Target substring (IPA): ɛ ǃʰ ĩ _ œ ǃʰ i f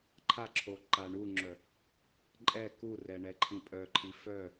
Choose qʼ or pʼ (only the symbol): pʼ